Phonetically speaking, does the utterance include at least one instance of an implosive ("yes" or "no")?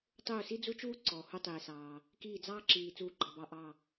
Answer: no